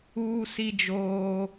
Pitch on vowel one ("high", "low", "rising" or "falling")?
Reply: high